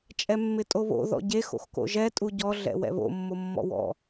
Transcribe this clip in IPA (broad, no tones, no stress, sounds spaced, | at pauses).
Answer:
t͡ʃʼ ɛ mː ɪ tʼ o β o̰ ð ɔ̰ ɟ e x o̰ x k o̰ ʒ ɛ tʼ u ɟ ɔ ɮ ɛ̰ w ɛ̰ β o̰ mː o mː ɔ̰ w ɔ̰